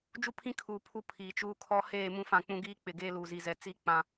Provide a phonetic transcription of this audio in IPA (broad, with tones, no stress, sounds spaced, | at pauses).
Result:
d͡ʒ u˦ pʰ ĩ˦ kʰ uː˨ pʰ u˨˦ pʰ iː˨ t͡ʃ uː˦ kʰ ɔ˦ h eː˦˨ m ũ˦ f ã˦˨ k͡p ũ˦ ɡ iː˦ k͡p ɪ˨ ɡ eː˦ l uː˨ z i˨ z ɛ˨ t͡s iː˦ k͡p ã˦